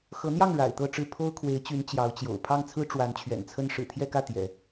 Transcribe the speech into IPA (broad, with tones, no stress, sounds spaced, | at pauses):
x ɤ˧˥ n̪ j ɑ˥˩ ŋ ɻ a̰˨˩ ɪ̯ t̪ ɤ˥˧ ʈ͡ʂ ɻ̩˥˩ pʰ o˥ ʊ̯ kʰ w e˧˥ ɪ̯ t͡ɕ y˧˥ n t͡ɕ j ɑ˧˥ ʊ̯ t͡ɕ j o̰˨˩ ʊ̯ pʰ ɑ˥˩ ŋ t͡sʰ ɹ̩˥ ʈ͡ʂ w a˧˥ n t͡ɕʰ ɥ ɛ̰˨˩ n t͡sʰ ə˥ n ʂ ɻ̩˨˩ t̪ʰ j ɛ˥˧ k ä˥˩ t̪ j ɛ̰˨˩˦